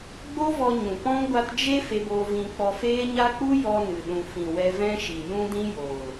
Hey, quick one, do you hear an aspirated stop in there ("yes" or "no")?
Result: no